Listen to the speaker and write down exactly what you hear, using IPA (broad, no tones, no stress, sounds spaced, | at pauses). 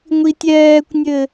ŋʷ i tʲ ɛː kʷ nʲ ɘ